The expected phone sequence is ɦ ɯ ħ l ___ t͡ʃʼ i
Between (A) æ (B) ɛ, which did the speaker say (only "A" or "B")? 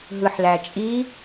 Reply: A